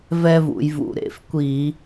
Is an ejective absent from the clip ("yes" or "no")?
yes